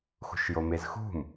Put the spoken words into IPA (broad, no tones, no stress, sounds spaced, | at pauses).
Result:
x ṳ ʃ j o m e z x ṳ m